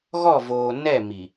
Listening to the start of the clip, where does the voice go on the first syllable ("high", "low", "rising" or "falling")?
falling